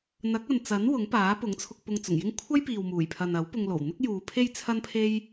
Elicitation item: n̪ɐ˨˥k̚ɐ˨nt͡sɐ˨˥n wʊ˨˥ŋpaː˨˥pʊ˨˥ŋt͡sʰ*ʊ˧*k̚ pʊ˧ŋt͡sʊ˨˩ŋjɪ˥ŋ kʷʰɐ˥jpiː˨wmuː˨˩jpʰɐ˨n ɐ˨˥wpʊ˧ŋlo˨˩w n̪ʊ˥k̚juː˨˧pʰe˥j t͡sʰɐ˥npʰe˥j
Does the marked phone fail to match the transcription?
no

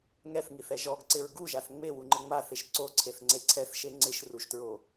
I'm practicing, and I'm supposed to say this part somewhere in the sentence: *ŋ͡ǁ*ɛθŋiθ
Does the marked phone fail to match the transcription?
yes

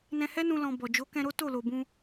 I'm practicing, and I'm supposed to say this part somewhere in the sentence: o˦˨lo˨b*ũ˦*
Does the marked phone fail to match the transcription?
yes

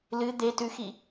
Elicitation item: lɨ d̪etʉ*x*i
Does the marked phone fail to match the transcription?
no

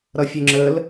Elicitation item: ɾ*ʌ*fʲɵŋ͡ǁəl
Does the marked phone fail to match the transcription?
no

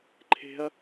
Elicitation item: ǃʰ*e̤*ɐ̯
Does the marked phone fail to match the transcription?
no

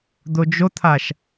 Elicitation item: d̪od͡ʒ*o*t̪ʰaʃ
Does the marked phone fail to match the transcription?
no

